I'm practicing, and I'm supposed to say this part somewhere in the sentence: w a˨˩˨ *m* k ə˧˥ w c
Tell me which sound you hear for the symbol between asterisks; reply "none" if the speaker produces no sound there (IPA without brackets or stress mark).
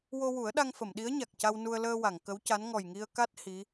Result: ŋ